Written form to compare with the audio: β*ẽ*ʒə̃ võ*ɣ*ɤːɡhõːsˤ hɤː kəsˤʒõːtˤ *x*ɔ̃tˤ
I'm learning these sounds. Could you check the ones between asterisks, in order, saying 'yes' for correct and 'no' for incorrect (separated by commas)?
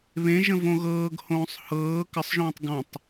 yes, yes, no